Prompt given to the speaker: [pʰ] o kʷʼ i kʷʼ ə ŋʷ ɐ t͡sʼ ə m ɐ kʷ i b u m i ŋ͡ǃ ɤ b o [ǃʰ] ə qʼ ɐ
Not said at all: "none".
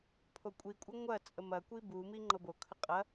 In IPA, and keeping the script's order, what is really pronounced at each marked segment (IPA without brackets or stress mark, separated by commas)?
pʰ, kʰ